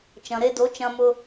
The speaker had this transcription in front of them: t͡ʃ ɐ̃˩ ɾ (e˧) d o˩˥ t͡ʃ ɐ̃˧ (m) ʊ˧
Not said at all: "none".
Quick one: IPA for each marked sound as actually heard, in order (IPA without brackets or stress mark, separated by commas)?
e˧, m